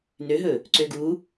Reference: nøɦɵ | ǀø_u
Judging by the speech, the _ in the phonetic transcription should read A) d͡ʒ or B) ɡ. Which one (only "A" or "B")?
B